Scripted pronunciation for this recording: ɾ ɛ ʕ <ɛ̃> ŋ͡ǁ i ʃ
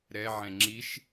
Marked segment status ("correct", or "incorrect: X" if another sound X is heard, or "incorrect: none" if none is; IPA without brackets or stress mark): correct